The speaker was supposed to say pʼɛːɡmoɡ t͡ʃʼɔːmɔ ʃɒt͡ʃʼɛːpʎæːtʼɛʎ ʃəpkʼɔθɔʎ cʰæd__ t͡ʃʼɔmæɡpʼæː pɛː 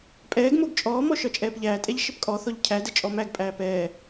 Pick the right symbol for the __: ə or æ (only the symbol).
ə